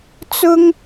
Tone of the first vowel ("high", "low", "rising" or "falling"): high